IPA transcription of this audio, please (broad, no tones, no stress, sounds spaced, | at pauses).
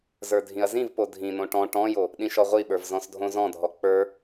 z ə˞ dʱ ĩ ɐ̯ z ĩ v p o dʱ ĩ n̪ õ ʈ ɔ̃ ʈ ɔ̃ j o | ɗ ĩ ʃ ɔ ʁʷ i ɓ ə˞ v z ɔ̃ s dʱ õ z ɔ̃ dʱ ɔ k͡p ə˞